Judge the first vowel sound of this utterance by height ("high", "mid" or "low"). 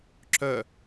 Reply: mid